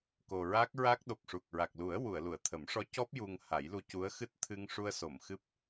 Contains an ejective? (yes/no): no